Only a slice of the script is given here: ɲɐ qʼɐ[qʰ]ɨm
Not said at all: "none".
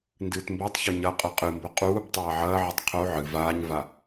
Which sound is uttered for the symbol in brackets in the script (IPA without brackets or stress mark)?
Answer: qʼ